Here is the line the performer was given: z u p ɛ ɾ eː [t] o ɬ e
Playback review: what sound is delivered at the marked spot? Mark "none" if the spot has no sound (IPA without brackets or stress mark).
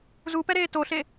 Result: t